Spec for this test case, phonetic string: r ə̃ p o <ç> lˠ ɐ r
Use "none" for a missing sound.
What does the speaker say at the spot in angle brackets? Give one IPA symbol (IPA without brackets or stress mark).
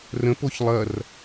ç